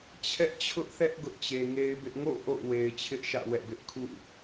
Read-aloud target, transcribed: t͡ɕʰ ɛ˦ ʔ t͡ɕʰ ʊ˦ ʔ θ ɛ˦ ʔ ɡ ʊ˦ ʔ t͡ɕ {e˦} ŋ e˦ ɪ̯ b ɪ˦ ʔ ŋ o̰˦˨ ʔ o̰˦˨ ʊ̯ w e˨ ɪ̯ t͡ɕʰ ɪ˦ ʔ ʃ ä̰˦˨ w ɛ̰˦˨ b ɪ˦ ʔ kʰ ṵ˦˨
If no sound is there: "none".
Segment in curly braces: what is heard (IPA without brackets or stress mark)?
e˨